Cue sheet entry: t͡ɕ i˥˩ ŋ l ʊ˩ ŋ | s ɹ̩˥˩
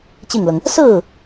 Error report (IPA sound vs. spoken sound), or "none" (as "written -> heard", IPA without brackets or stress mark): none